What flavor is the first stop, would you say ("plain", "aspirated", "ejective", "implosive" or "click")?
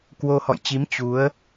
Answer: plain